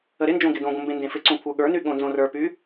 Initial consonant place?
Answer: alveolar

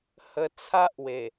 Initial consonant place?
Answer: glottal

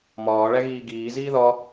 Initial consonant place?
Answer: labial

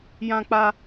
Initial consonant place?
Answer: palatal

